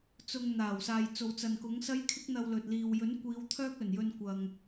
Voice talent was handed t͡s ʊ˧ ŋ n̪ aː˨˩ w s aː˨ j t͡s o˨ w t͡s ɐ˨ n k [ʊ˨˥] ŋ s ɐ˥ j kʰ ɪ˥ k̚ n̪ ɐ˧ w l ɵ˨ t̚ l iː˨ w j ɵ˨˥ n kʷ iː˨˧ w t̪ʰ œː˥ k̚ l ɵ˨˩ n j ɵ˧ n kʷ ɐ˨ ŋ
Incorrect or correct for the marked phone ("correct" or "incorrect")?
correct